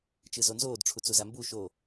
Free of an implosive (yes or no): yes